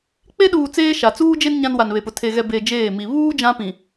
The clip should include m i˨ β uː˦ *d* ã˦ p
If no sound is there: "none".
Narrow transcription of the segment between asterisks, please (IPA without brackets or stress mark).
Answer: d͡ʒ